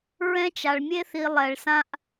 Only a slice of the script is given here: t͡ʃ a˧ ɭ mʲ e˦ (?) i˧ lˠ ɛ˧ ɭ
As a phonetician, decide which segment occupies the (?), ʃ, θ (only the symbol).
θ